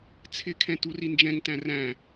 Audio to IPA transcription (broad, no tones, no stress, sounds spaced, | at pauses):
t͡sʰ ɪ kʰ ɛ̃ t u r i n d͡ʒ ɛ̃ ŋ t æ̃ r æ̃